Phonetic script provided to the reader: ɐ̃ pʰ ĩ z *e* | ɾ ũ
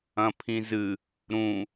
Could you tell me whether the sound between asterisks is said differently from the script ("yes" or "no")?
yes